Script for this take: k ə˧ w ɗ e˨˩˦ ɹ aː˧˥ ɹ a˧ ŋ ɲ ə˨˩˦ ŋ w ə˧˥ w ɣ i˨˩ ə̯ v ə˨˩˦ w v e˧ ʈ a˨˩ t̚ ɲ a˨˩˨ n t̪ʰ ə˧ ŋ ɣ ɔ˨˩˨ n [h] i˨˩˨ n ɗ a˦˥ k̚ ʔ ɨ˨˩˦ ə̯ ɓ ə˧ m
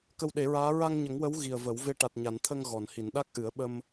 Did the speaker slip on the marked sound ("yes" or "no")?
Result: no